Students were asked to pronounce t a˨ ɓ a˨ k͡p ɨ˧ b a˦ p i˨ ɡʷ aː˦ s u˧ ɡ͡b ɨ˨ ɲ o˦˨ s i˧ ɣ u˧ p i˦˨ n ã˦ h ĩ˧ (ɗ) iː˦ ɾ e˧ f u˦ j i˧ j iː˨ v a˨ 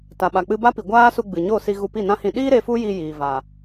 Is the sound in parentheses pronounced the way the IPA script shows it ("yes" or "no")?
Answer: yes